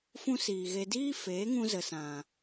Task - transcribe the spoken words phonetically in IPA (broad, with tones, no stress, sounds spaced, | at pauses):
f ũ˦ s iː˨ ɣ e˧ d iː˦ f eː˨˦ ŋ ũ˧ z ə˨ s ã˨